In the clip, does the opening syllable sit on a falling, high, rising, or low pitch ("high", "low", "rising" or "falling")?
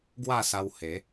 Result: falling